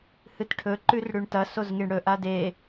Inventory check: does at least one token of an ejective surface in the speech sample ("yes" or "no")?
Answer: no